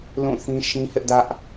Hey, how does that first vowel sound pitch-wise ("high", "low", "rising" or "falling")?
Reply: falling